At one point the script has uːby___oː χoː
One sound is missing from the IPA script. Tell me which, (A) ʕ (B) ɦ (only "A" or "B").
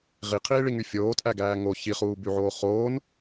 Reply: A